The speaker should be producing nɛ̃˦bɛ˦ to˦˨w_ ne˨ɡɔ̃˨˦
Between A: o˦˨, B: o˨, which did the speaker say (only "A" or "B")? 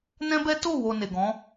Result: B